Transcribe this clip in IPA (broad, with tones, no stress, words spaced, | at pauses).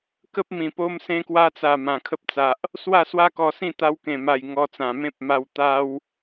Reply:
kə˦p̚mĩ˨˩ po˧msẽ˧kwa˧t͡sa˨˩ mã˨˩kʰə˦p̚t͡sa˨ʔ | swa˥˧swa˦kɔ˧sĩ˥˧ t̪a˧wkẽ˨˩ma˨˩j ŋɔ˧t͡sã˨˩ mẽ˦p̚ ma˧w t̪a˦w